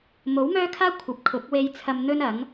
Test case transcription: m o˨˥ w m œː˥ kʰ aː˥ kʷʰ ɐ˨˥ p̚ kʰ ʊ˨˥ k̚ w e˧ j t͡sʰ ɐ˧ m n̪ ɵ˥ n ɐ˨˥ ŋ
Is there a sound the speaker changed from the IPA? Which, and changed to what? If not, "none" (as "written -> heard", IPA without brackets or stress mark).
none